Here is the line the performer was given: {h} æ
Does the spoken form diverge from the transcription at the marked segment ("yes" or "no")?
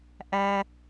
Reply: yes